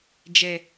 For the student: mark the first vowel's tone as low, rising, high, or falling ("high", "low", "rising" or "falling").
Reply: low